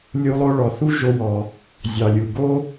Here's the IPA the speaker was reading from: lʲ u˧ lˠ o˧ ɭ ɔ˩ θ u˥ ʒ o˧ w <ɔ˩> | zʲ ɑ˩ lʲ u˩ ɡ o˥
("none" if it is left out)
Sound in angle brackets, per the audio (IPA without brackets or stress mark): ɔ˩